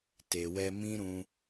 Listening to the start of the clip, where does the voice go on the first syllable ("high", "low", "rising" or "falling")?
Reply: low